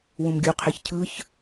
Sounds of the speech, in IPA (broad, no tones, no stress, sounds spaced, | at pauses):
w ũ m ɡʲ u qʰ e ç cʰ ɯ ç